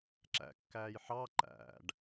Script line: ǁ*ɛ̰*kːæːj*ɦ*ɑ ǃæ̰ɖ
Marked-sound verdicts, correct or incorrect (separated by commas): incorrect, incorrect